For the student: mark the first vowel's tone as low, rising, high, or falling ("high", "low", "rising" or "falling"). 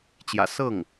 low